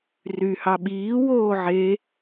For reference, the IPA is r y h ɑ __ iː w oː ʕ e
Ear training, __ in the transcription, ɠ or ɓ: ɓ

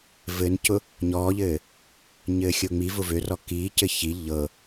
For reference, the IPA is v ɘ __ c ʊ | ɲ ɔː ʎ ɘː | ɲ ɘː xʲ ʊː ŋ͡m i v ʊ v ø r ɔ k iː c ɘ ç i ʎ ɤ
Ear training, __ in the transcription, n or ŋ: n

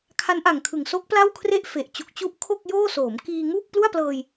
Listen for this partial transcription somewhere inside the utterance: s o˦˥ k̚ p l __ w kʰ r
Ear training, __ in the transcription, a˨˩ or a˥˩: a˥˩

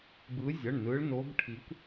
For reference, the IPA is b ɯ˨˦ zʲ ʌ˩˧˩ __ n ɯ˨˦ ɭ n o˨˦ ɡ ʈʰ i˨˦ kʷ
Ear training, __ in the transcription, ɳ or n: ɳ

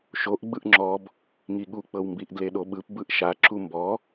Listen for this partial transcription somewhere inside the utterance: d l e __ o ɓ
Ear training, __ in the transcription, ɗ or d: ɗ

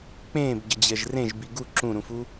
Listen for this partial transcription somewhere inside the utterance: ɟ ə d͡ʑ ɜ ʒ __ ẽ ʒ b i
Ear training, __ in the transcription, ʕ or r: r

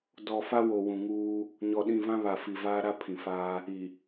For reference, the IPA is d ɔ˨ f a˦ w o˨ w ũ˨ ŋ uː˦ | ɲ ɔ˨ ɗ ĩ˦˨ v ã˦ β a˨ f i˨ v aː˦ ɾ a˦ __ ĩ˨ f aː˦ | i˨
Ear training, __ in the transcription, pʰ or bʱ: pʰ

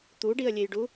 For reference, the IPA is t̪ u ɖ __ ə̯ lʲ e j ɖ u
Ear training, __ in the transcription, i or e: i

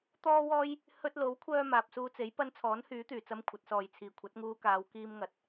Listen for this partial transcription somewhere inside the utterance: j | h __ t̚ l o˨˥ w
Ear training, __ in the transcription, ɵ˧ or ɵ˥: ɵ˧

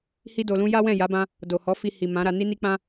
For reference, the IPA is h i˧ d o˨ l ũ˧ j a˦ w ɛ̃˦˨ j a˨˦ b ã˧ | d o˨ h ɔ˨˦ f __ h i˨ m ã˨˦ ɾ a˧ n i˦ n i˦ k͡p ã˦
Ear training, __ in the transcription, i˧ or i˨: i˧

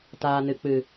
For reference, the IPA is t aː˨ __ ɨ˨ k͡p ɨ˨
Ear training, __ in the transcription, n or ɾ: n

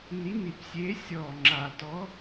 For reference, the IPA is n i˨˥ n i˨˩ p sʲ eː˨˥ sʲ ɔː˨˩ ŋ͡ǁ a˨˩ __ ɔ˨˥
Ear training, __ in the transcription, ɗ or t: t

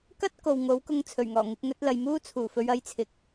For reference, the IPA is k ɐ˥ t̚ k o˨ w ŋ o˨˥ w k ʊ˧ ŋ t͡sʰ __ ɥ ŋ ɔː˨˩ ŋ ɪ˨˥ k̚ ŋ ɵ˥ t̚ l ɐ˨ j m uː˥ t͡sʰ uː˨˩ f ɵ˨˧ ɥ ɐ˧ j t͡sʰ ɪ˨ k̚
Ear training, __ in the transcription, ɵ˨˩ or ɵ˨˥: ɵ˨˩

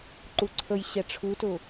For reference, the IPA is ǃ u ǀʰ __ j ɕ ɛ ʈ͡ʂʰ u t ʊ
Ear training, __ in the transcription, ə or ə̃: ə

